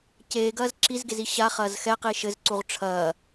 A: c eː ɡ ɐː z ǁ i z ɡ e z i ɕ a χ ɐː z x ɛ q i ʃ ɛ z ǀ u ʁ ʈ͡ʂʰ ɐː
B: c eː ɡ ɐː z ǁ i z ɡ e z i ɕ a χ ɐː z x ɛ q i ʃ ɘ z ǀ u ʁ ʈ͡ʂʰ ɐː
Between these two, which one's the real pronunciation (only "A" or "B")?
B